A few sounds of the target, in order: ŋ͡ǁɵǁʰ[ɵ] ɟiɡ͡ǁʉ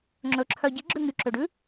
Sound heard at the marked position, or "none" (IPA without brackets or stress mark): œ